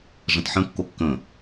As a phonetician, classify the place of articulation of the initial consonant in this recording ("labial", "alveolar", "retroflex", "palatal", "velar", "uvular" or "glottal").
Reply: retroflex